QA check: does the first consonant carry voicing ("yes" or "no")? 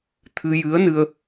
no